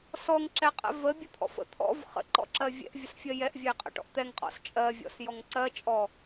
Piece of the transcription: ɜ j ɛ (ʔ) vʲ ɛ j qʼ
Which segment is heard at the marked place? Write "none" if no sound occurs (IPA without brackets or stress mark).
ʔ